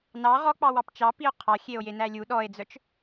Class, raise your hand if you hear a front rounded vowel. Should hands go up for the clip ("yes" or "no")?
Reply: yes